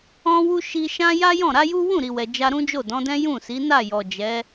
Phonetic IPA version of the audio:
ɔ̃˧ w u˧ ʃ i˧ ʃ ã˦ j a˦ j ɔ̃˦˨ ɾ a˨˦ j u˦ w ũ˦˨ ɾ i˨ w ɛ˨ d͡ʒ a˧ ɾ ũ˦ d͡ʒ o˦˨ d ɔ̃˨˦ d ɛ̃˦ j ũ˦˨ s i˨˦ n a˦˨ j ɔ˨ d͡ʒ ɛ˨˦

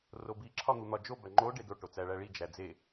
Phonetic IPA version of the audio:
r o b i ǁʰ ɒ n̪ u n̪ ɒ d͡ʒ o b æ ŋ͡ǃ o ɖ e d o ʈ o t͡s æ ɭ æ ɭ i d͡ʒ æ d͡z e

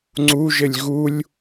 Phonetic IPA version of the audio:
ŋ͡ǀ u ʒ ɘ lʲ ɣ u lʲ

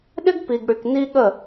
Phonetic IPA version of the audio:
ɗ ɪ˦ ɡ p i˨ ɡ ɽ y˨ k n i˦ ɠ ə˦˨

